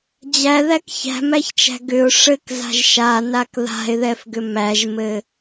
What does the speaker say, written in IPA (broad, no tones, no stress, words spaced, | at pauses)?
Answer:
d͡ʑæðæk çæ̤mæçt͡ʃæ̤ ɡʏʊ̯ ʂɘkza̤ʒ ʃanak ða̤ɪ̯ðɛfɡʏ mæʒmɘ